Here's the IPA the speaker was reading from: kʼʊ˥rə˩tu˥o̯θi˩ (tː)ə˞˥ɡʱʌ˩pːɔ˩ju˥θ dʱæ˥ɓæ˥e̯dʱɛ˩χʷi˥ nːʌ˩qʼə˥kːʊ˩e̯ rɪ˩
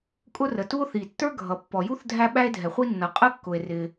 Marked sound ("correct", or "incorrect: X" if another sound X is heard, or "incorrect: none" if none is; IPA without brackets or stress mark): correct